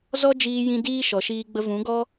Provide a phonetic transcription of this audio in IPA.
z ɔ˦ d͡ʒ iː˧ j ĩ˧ d iː˦ ʃ ɔ˨ ʃ iː˧ ɡ͡b ə˧ v ũ˨˦ ɡ ɔ˦

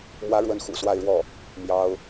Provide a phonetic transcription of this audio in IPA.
m w ä˧˥ ɻ w ə˥ n x ṵ˨˩ s w a˥˧ ɪ̯ ɻ w ɔ˥˩ | m j ɑ˥ ʊ̯

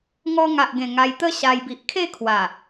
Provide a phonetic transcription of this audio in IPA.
ŋ ɔ˧ ŋ a˨ ʔ ɡ ẽ˨˩ ŋ a˧ j t̪ ə˦ ɕ a˧ j b i˨ ʔ kʰ e˥˧ kʰ w a˨˩

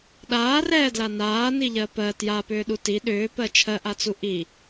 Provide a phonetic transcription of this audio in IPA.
ɗ aː r ɛː d l a n aː n i ʎ ɜ p ɜ t j a p ʏː ɗ u t i ɗ ʏː p ɜ t͡ʃʰ ɜ ʔ a t͡s u ʔ i

